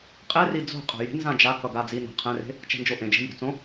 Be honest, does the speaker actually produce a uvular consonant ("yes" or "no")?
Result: yes